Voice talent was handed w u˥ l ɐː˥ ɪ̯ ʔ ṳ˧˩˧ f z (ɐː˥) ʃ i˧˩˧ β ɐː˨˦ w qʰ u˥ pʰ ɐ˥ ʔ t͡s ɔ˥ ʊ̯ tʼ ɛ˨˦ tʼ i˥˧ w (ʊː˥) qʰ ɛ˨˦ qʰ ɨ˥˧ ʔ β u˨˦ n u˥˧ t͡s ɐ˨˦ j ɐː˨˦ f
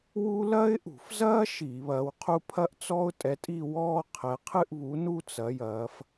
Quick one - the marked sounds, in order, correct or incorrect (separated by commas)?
correct, incorrect